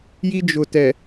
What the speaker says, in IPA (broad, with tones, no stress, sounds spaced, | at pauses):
j i˦ d͡ʒ ʊ˨ t ɛ˨